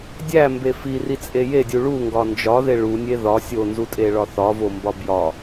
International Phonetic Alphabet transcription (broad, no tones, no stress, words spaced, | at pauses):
dʲæmbe firit͡sʼe jedʲu ɭuŋɡɒ nd͡ʒɒðe ɭunʲe ðɒ sʲonzutʼeɭɒ θɒvombɒ bjɒ